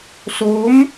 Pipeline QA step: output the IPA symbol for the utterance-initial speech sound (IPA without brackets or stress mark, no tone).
s